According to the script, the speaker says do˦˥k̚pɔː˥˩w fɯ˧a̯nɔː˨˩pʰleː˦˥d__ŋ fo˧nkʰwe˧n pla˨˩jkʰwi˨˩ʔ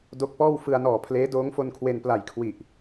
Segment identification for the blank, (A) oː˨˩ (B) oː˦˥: B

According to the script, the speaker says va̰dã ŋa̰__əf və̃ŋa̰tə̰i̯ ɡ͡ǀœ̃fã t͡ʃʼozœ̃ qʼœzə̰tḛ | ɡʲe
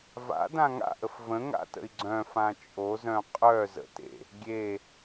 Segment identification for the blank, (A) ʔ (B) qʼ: A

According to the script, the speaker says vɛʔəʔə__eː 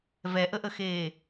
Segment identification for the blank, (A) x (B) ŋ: A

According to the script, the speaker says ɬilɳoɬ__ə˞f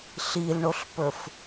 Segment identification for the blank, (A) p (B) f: A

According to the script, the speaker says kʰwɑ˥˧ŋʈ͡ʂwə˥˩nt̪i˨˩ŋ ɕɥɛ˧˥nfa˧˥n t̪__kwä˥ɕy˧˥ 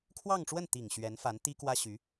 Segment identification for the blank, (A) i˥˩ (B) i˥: B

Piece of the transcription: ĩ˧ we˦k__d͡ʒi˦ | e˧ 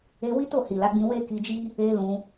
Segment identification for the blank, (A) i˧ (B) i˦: A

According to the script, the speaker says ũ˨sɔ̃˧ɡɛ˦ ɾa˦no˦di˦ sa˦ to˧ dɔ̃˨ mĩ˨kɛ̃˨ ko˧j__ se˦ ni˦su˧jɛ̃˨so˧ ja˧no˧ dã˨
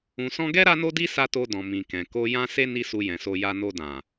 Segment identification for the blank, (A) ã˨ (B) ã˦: B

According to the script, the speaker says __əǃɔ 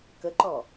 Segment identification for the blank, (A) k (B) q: A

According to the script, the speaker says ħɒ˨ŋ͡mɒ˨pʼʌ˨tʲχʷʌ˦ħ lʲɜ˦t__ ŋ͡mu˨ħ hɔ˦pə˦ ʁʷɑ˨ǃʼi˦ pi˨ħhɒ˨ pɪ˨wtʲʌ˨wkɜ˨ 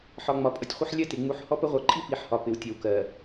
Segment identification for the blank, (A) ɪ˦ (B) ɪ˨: B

